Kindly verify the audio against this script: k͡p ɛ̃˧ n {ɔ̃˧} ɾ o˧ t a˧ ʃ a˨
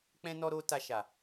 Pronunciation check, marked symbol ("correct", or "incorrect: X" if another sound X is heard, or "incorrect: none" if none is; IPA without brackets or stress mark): incorrect: ɔ˧